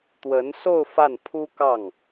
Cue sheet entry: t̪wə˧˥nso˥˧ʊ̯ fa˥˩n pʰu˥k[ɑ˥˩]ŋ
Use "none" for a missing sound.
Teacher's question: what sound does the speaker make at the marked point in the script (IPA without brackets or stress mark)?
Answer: ɑ˥˩